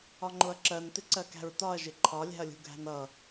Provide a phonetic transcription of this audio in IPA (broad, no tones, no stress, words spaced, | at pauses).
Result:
ɒŋ͡ǃʊɐ̯ǁɜn tɪǀɜkæ̤ɹtɒɐ̯ ʒɪǃʰɒ lʲæ̤ɐ̯lʲṳɡʱæ̤nʌ